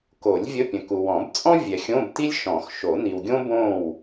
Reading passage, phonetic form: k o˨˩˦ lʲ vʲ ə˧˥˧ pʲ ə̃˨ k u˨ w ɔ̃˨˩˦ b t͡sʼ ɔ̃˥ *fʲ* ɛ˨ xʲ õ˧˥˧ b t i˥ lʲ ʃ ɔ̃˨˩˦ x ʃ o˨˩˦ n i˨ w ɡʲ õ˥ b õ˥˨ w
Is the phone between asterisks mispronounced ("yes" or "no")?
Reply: yes